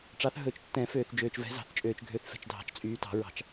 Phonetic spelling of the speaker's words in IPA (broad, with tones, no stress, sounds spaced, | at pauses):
ʈ͡ʂ ɑ˨˦ θ ɦ ɵ˨˩˦ t͡ʃ tː ɛ̃˨˩˦ f øː˨ θ d͡ʒ øː˨ t͡ʃ v ɛ̤˨˦ z ɑ̤˨˩˦ θ t͡ʃʼ øː˨ t͡ʃ ɡʱ ø˨˦ θ f ɛ̤˨ t͡ʃ dʱ ɑ̤˨˩˦ t͡ʃ t͡sʼ yː˨˦ t ɑ̤˨˩˦ ɹ ɑ̤˨˩˦ t͡ʃ